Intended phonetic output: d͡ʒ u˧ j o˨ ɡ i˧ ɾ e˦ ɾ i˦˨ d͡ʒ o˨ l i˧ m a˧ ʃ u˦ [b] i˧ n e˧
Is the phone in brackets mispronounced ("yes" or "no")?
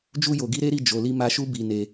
no